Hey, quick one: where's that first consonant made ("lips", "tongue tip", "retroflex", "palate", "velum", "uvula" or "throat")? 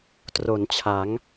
tongue tip